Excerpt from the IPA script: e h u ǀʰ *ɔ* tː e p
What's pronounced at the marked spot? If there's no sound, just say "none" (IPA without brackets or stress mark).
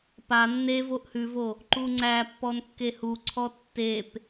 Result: ɔ